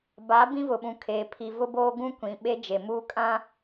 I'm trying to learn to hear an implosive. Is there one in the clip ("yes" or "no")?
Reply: yes